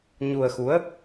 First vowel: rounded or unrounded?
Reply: rounded